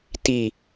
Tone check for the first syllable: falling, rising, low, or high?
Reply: low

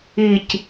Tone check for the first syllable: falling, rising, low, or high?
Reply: low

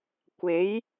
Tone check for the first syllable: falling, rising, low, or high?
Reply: rising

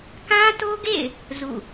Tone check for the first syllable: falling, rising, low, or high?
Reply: high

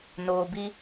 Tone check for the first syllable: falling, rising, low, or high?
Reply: low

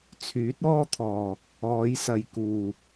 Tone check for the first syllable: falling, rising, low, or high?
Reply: rising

